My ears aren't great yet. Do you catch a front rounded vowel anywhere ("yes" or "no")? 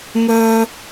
yes